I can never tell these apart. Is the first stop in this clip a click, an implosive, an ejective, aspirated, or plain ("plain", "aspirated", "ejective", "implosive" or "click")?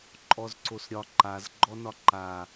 click